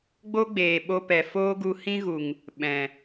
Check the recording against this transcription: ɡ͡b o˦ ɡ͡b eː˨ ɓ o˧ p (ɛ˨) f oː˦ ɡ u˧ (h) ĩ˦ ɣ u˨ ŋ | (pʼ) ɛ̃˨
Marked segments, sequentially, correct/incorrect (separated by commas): correct, correct, incorrect